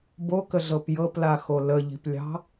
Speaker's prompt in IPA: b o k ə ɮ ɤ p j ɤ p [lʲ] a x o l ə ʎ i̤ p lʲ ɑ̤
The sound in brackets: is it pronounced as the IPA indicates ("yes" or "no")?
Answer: no